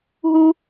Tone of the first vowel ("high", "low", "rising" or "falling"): high